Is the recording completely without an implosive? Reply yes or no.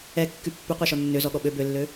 no